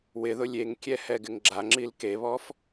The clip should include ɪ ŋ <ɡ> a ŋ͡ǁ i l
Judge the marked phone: incorrect: ɡ͡ǁ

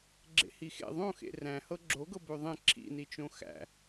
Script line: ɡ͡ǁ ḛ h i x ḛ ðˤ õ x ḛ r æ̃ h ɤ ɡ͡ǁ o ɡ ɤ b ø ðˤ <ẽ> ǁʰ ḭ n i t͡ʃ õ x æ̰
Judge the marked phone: correct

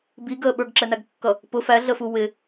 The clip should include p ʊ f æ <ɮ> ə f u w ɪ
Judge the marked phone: correct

